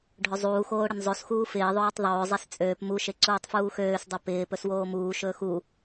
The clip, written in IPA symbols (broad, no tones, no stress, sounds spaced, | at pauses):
ɖʱ ɵ zˤ uː x oː ɽ ɪ n zˤ o s x uː f ɪː ðˤ oː tˤ ðˤ ɵː zˤ e s t͡sʼ øː p m u ʃ e ǀ uː tˤ f uː x øː s dˤ o p ɪː p ɵ s w oː m uː ʃ ɵː x u